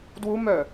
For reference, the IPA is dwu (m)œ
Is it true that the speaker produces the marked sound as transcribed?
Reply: yes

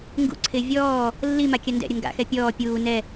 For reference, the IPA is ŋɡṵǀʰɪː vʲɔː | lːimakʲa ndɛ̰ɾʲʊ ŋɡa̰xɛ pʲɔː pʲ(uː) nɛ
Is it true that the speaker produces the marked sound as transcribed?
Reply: yes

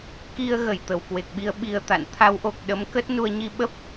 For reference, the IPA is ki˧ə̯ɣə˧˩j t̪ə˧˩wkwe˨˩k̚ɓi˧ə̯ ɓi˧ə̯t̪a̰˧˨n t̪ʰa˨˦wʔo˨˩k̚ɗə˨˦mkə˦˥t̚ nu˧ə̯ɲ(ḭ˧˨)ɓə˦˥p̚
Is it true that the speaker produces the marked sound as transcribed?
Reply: no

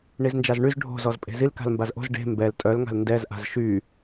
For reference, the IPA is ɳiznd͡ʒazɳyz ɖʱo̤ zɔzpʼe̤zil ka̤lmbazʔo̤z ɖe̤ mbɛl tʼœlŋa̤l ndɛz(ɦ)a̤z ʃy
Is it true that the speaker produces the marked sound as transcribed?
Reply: no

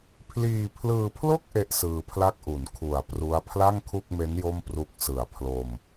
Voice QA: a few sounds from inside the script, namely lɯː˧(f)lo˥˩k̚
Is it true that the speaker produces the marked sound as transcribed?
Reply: no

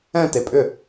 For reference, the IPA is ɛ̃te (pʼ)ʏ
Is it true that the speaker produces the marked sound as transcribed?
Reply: yes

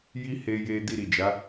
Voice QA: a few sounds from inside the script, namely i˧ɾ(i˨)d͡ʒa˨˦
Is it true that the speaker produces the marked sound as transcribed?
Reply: yes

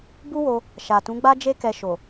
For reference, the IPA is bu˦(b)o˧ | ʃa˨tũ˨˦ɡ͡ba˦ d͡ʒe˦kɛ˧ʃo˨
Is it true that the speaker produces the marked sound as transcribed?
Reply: no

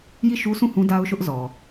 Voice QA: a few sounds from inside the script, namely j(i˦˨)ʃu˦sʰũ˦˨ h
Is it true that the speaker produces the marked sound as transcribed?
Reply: yes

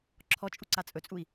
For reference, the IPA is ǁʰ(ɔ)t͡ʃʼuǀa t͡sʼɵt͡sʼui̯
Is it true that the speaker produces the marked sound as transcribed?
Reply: yes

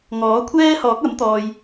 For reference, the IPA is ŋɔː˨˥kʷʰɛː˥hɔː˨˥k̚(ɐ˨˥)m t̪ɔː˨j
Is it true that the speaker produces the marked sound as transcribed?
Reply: yes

